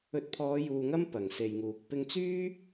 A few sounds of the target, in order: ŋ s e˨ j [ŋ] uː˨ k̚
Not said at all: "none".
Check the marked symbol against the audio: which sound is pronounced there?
ŋ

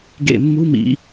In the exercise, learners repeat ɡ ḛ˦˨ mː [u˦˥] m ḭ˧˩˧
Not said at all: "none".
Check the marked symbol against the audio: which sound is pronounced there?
u˦˥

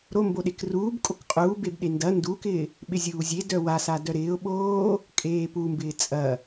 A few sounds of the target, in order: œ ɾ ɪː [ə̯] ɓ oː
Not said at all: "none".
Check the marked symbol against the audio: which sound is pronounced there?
ʊ̯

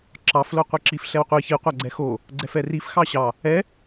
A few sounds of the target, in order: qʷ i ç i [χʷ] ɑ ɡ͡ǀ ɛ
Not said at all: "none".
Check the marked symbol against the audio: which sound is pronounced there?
qʷ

